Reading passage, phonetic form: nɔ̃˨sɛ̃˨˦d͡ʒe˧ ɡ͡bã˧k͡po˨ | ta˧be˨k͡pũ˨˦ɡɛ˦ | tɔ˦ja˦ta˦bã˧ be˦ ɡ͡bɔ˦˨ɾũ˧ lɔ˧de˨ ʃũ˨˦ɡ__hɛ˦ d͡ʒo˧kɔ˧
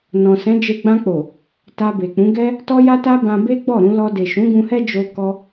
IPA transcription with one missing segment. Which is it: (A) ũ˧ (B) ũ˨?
A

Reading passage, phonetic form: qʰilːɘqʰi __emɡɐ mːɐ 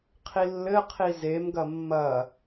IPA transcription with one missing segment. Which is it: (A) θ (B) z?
B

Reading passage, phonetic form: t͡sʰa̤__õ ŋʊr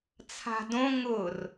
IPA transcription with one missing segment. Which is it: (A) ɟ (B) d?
B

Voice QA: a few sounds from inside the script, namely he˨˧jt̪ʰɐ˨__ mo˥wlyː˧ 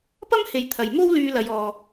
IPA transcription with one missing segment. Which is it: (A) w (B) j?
B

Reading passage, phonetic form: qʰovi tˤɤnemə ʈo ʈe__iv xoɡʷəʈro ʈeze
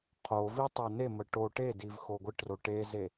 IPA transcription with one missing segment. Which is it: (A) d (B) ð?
A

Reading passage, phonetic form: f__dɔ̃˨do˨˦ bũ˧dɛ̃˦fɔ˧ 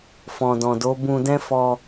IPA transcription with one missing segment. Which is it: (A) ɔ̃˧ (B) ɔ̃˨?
B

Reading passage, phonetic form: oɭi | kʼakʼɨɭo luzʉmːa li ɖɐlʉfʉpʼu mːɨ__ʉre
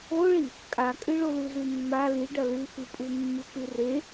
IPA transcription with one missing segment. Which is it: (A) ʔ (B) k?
B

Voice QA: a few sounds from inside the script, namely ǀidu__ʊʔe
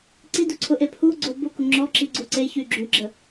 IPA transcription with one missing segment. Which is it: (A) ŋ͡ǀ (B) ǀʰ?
B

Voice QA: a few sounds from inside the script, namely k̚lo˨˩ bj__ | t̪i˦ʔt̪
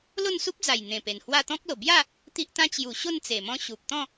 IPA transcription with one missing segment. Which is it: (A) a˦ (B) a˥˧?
B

